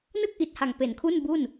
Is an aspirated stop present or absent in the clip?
present